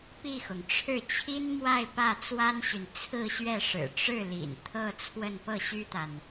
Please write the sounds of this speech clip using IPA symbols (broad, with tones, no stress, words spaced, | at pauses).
pi˥˩xʊ˩ŋ ʈ͡ʂʰɻ̩˥˩t͡ɕʰi˥nmwa˥˧ɪ̯ pä˥˩t͡swa˥nɕy˨n t͡sʰɹ̩˥˧ɕɥɛ˥˩ ʂɻ̩˨˩ʈ͡ʂɻ̩˥˩lḭ˨˩n t̪ʰɤ˥˧ t͡sʰwə˥˧n pɤ˥˩ɕy˥t̪a˨n